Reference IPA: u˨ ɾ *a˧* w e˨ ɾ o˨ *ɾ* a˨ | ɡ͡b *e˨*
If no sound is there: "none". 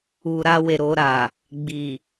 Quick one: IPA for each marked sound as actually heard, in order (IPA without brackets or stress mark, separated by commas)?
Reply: a˧, ɾ, i˨